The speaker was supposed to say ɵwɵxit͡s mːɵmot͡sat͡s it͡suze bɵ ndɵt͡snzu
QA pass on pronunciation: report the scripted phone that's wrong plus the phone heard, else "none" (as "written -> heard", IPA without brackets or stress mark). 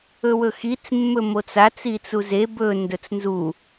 none